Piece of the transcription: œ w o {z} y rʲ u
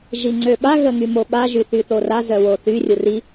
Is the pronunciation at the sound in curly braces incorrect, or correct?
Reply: incorrect: θ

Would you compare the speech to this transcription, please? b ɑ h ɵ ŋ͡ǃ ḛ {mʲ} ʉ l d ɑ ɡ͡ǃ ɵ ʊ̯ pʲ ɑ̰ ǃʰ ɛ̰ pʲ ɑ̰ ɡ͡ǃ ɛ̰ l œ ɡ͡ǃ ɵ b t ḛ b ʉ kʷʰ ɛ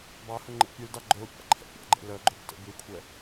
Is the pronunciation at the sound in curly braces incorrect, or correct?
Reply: incorrect: pʲ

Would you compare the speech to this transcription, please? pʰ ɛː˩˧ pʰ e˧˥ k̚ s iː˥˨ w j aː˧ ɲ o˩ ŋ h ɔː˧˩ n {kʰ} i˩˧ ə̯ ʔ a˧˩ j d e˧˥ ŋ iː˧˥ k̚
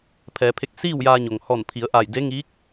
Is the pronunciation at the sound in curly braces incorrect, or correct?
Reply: incorrect: pʰ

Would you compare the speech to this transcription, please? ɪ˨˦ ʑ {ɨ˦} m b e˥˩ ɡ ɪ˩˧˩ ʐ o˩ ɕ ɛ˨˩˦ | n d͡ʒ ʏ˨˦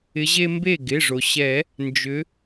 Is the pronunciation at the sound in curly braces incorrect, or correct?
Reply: incorrect: e˦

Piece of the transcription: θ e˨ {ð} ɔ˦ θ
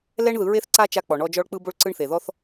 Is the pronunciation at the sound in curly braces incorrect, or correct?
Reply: correct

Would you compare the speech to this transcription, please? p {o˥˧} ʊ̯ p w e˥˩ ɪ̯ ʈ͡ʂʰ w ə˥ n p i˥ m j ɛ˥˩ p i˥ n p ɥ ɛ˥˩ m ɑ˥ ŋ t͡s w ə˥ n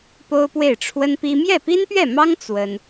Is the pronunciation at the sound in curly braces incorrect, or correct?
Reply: incorrect: o˥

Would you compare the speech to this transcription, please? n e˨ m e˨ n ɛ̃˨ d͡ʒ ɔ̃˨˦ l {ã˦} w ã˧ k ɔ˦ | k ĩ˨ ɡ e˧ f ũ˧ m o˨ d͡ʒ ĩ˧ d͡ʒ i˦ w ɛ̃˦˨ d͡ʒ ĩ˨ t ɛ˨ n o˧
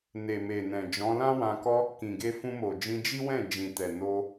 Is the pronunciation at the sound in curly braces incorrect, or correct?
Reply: correct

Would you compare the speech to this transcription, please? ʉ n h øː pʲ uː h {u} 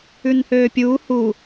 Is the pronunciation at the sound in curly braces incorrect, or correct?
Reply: correct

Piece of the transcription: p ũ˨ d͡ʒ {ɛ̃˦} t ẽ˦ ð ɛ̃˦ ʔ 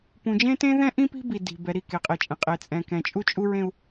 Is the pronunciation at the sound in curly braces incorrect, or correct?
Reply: incorrect: ẽ˦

